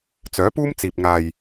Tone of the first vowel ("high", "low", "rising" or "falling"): rising